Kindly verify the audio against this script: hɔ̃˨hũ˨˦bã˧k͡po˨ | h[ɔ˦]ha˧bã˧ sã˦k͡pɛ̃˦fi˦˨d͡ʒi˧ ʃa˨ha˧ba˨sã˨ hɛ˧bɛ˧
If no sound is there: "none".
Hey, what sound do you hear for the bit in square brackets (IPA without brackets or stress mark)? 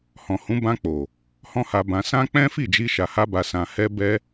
ɔ̃˦